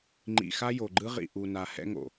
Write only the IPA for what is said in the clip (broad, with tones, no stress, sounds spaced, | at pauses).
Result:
ŋ͡ǃ ḭ˨ x a˦ j o˨ ɡ͡ǃ ɯ˦ ʁ ḭ˨ ʔ u˨ n a˨ h ɛ̰˦ ŋ o̰˨